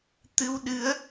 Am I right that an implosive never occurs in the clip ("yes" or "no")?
no